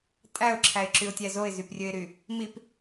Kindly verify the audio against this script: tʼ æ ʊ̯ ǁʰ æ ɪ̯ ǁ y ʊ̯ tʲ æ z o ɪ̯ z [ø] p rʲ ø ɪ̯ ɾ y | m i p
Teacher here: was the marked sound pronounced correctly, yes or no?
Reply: no